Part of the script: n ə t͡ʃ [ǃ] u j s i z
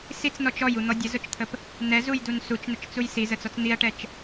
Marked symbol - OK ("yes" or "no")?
no